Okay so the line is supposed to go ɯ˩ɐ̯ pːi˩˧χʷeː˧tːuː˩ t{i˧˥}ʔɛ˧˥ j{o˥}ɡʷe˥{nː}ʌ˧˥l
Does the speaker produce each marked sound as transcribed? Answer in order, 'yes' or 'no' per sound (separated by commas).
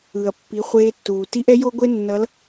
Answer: yes, yes, yes